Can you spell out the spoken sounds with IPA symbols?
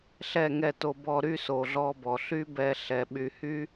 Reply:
ɬɛ˦˨ŋɛ˦˨to˧ bɔ˧ ɾy˦so˨ɮɔ˧bɔ˨ ɬy˦bɛ˧ɬɛ˨ ɓy˨hy˦

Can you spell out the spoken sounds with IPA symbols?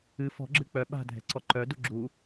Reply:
ɨ fɔ̤ɡ͡ǁɨ k͡pœ ɓa̤dʱɛ̤ǀɔ ǃœ duɡ͡ǁu

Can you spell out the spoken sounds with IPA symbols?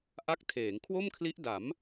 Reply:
ʔa˦˥k̚tʰeː˩˦ŋ kʰwo˥˩mkʰli˦˥ʔ da˩˦m

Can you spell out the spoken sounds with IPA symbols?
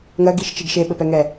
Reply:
ŋɜɡiʃt͡ʃiɡ ʃeɓɘpɛŋɛ

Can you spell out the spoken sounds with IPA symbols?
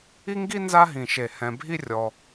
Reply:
i˥ŋɡi˥ nza˥ɦĩ˧˩ʃe˧˩ hɛ̃˧bʱi˥ rʲɔ˧

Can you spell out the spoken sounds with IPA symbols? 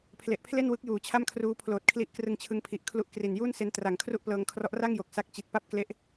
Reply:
pʰle˨˩ʔpʰle˥˩nwɯ˦˥k̚ juː˨˩t͡ɕʰa˥˩mkʰruː˦˥ pʰloː˨˩t̚kʰli˦˥ʔ krɯ˧ŋt͡ɕʰɯ˧ŋpʰi˨˩ʔ kʰlu˦˥ʔkri˨˩n juː˥˩nse˦˥n tra˨˩ŋ kʰru˥˩ʔplɤː˧ŋkʰrɔ˦˥ʔ ra˥˩ŋjo˨˩k̚ sa˦˥k̚t͡ɕi˨˩t̚ pa˥˩p̚kle˦˥ʔ

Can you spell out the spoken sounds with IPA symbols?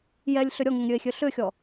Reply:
jɛlʲɬʏ ɾʲɔŋʏŋɾʲøe̯xʲø ɬʏxʲɔ

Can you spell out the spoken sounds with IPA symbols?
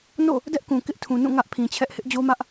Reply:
no̰˦˨ | dɛ˦ʔkũ˨ kɪ˦ʔtʰũ˨nũ˦˨ ŋä˦ʔpʰĩ˨t͡ɕʰɛ˦ʔ hɪ˦ʔd͡ʑo˦mä˦ʔ

